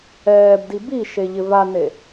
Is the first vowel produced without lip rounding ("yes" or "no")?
yes